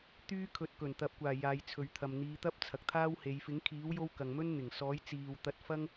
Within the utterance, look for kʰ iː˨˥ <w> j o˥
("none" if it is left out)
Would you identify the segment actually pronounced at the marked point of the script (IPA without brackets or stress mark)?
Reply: w